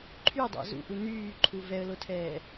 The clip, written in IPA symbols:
ǃʰydˤa̰ zṵʔu nyːǃʰu vɛə̯lotʰɛː

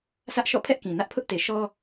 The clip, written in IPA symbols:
sä˦ʔʃɔ̰˦˨ pʰɛ˦ʔkĩ˨nä˦ʔ pʰʊ˦ʔte˨ʃɔ˦

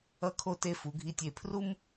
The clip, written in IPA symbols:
ʌ˧kʰo˧ te˧fu˩˧ɡʱi˧˩tʲe˧˩ pʰru˥m

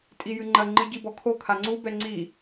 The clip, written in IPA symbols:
tʼijɨŋ͡ǃɐ ŋ͡ǃɨɟibɔkʰo kʰaŋ͡ǀu bɛŋ͡ǀi

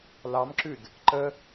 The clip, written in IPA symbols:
lɑmǁʉd | ǃə

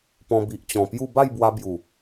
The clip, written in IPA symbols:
pɔ̃˧bi˨ʔt͡ɕɔ̃˨˩pju˥˧ ba˥˧jbwa˧bju˨˩

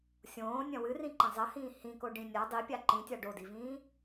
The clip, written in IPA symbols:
sʲõːnʲɐ̃ wɨrĩǃɐ̃ zˤɐhĩː hĩkoɖĩ nʲa dˤipʲa ǃĩtʲa ɖodivĩː

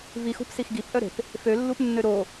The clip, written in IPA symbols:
vixṳp sixɡipʔœɾe̤p | følːupnːø ɾo

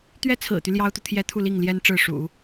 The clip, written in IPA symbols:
t̪ɥɛ˥t͡sʰɹ̩˨˩t̪y˦ ljɑ˥ʊ̯t̪u˨t̪ʰjɛ˥ t̪ʰu˥˧li˥˩ŋljɛ˥n ʈ͡ʂɻ̩˥˩ʂṵ˨˩˦

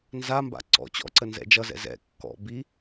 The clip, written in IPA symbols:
nzamba̰ ǀɔ̰ t͡ɕɔ̰ ǀənzɛ̰d͡ʒʌzɛ̰ zɛ̰ kːɔ̰ bi

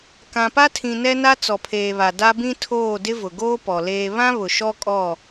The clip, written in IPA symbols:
kã˨pa˦tʰĩ˨ nɛ˦na˦ t͡sɔ˨pʰeː˨βa˨ da˦bĩ˦tʰoː˦˨ dɪ˦vʊ˨ɡoː˦ pɔ˨leː˦ βã˦βʊ˨ ʃɔ˦kʼɔ˦˨

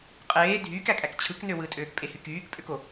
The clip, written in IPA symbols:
qʼeː dʱyːkækʼæk t͡ɕʰɯknø wɯtʼøːkpʼehy kyːkpʼøko

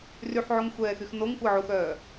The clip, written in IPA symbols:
ryħʕoŋxʷɛːxyx noŋkʷəːʕuxœː

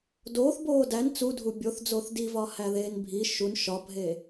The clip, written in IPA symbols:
doːθ boːdæn t͡sudʱu bʲoθd͡zoːθ divɒ hæðeːnbʱi ʃun ʃɒbʱe

